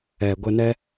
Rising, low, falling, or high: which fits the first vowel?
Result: low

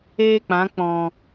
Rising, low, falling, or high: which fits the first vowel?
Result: high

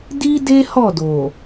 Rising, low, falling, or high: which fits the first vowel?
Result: high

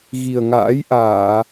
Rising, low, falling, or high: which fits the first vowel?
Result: low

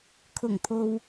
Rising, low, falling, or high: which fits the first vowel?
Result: low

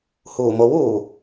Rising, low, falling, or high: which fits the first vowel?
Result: low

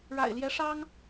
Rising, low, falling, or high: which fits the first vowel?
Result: low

